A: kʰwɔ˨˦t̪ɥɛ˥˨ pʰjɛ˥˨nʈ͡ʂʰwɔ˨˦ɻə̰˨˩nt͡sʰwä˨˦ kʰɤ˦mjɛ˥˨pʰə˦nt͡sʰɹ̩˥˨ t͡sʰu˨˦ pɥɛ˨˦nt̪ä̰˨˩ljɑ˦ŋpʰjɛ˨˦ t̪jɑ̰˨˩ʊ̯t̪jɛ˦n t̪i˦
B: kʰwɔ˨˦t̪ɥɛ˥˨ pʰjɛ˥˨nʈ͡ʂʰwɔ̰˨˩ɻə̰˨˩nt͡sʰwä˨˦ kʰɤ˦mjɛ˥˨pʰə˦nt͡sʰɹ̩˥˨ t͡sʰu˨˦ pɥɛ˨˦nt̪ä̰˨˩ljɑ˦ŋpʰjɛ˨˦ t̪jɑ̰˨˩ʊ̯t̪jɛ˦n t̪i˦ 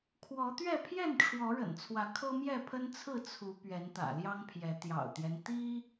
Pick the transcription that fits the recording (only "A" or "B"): A